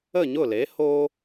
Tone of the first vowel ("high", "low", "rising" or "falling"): falling